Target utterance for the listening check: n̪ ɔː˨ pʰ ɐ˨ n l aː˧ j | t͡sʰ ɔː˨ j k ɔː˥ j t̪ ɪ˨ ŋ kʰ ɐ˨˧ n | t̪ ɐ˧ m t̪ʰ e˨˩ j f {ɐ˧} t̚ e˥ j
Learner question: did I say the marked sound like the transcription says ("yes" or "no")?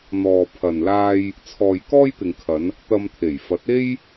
no